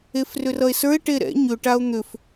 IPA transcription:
e f r ʏ r ʌ e̯ s ə˞ e̯ ʈ e ɾ ɛ̰ ɲ ʏ ʈ a o̯ n̪ ʏ f

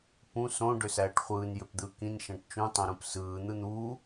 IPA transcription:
p ũ s õ ɖ ø s æː ʈ χʷ ɯː n j ø p d̪ ɯː k ĩ n ʃ æ̃ ʈ t͡ʃ ũ tˤ õ ɾ ũ p s ɯː n̪ ɯ n̪ uː

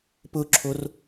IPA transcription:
p ʊ ǁʰ o r

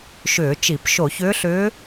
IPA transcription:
ʃ ʏː˧˩˧ t͡ʃ i˧˩˧ p ʃ o˧˩˧ ç ʏː˧˥ ɬ ʏː˧˥

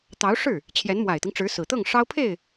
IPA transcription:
t̪ ɑ˧˥ ʊ̯ ʂ ɻ̩˥˩ | t͡ɕʰ j ɛ˧˥ n m w a˨˩ ɪ̯ t̪ i˦ ŋ ʈ͡ʂ ɻ̩˧˥ s ɹ̩˨˩ t̪ ɤ˥˩ ŋ ʂ ɑ˥ ʊ̯ pʰ e˥˩ ɪ̯

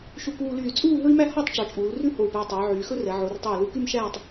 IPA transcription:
ʃ u˧ k uː˧ l yː˧˩ t͡sʼ uː˥˧ ɦ ɵ˥ i̯ m æ˥ h ɔ˥˧ tˤ ʈ͡ʂ ɔ˩˧ t͡ʃʼ uː˩˧ l r ʉ˥ h o˧˩ u̯ p æ˧ i̯ tˤ ɵː˩˧ ʕ yː˩˧ x ɵ˥ r ɛ˩˧ ʕ o˩˧ r tˤ o˧˩ u̯ l u˧ k y˥˧ m ʃ æː˥˧ tˤ

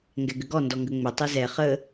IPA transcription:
ŋ ɡ ɛ ɡ ʏ ɡ ɔ n d ɔ ŋ ɡ ə ŋ͡m ʏ tˤ ɛ z ɛ χ ə

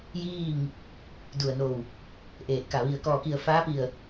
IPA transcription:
j iː˥˨ ŋ | d u˧˩ ə̯ n o˧˩ w | ʔ eː˧˩ t̚ k a˧˩ ʋ i˧˩ ə̯ k ɔː˧˩ k i˧˩ ə̯ f aː˧˥ p i˧˩ ə̯

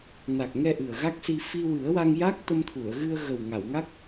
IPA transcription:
n a˨˩ k̚ ŋ ɛ˧ ʔ ɨ˨˩ ə̯ ɣ a˦˥ k̚ s i˧ f i˧ w ɨ˨˩˦ ə̯ w a˧ ŋ j a˦˥ k̚ t̪ ə˧ m t̪ʰ u˨˩˨ ə̯ ɣ ɨ˧ ə̯ ɣ ə˨˩ w ŋ a˨˩˨ w ŋ a˦˥ k̚

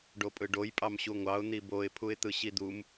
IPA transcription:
ɖ o pʼ ɯ ɖ o j pʼ ɑ m ɕ u ŋʷ ɑ ʊ̯ n̪ i b o ɪ̯ pʰ u ɪ̯ t̪ ɯ ɕ i d̪ u m

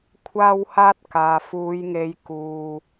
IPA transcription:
kʷʰ aː˥ w h aː˥ t̚ k aː˨ f uː˨˧ j ŋ e˨˧ j k uː˨

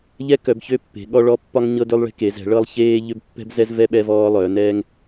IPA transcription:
ʎ ɛ˦ k œ˩˧ b ç ø˦ pː e̤˩˧ ɠ ɔ˦ ɭ ɔ˦ pː ɒ˦ ŋ ɲ ɤ˦ d ø˦ lˠ ɭ e̤˦ k e˩˧ z ɛ̤˩˧ ɭ ɤ˦ lˠ ç eː˦ ʎ ø˦ b pː ɛ̤˦ b z ɛ˦ z v ɛ˦ ɓ ɛ˦ v ɔː˦ lˠ œː˩˧ n ɛː˦ ŋ

